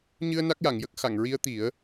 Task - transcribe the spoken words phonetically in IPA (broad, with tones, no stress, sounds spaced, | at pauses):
ɲ ɨ˧ ə̯ n a˦˥ k̚ j a˨˩˨ ŋ j ə˦˥ k̚ x a˨˩˨ ŋ ɹ i˧˥ ə̯ t̪ i˨˩˦ ə̯